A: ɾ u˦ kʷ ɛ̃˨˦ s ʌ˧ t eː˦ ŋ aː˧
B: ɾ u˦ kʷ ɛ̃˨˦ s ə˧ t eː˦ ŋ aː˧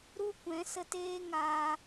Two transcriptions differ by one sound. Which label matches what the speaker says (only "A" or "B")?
B